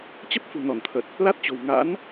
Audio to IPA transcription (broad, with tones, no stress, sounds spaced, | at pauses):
t͡ɕ ə˦˥ p̚ f ṳ˨˩ n ɔ˧˩ n t̪ʰ ə˨˩ t̚ | l a˦˥ t̚ t͡ɕ o̤˨˩ w ŋ a̰˧˥ n